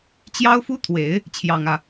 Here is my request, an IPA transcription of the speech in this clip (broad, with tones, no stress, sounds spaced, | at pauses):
t͡ɕ j ɑ˥ ʊ̯ f u˥ t̪ʰ w e˨˩˦ ɪ̯ | t͡ɕʰ j ɑ˨˩ ŋ ä˥˩